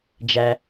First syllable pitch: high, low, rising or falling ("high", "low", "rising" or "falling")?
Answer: low